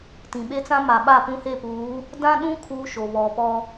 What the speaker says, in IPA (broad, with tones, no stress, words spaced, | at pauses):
tĩ˨ɓe˦t͡sã˦ ma˨ɓa˦˨ pũ˦he˦˨puː˨˦ | dã˦ɗũ˦ kʰuː˦ʃo˨βɔ˨pɔ˦